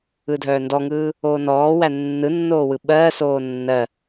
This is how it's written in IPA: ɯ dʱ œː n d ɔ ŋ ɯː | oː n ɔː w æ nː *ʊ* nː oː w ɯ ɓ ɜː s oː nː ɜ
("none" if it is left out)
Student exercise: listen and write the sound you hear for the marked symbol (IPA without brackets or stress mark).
ɯ